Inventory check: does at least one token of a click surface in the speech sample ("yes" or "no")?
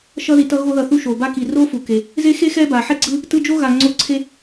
yes